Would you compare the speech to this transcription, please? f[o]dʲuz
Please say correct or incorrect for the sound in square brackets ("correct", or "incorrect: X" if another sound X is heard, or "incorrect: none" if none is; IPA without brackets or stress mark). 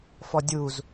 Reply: incorrect: ɔ